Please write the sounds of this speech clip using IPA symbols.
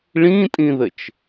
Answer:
ɭ ĩ tʼ ĩ ð ɘ t͡ʃ

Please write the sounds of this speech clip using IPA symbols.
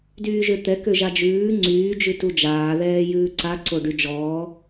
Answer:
d yː ʒ ø t̪ ɛ k ø ʒ a d͡ʒ ʉː ŋ͡ǀ yː d͡ʒ ʉ t u d͡ʒ aː ð ɛː j ʉː ǀ a ǀ o ɖ y d͡ʒ ɔː

